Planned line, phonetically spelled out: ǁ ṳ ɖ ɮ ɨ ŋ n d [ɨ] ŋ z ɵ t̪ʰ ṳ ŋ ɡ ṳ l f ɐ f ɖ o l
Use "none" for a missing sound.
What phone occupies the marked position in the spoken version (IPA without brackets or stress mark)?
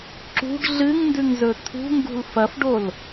ʉ